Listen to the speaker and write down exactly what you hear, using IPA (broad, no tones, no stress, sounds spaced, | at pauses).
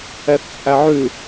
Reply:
ɛ θ t͡sʼ æ ʕ ʉ